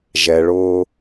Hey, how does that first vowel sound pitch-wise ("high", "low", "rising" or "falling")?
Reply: low